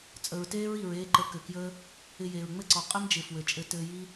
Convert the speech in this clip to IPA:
t͡sʼə˨ɹteː˦ɹi˨ɹ eː˧ǃə˨˦ kɘ˨ kjəː˦ | ɪ˧jeː˨ɹ ŋ͡mɘ˦ǀɔ˨ qʼɘ˦md͡ʒɪ˨ fwɘ˨t͡ʃʼɘ˧ tɘː˧ ji˦

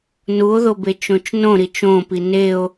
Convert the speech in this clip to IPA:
nuo̯ðobet͡ʃõt͡ʃ nõɾit͡ʃ õpi neo̯

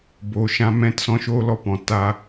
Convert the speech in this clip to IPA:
boː˨ʃã˧ mɛ̃˨˦t sɔ̃˧ʃoː˦ lɔ˧pɔ̃˨ ta˦

